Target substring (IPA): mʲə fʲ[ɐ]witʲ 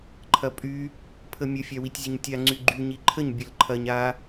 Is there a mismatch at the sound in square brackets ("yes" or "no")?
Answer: yes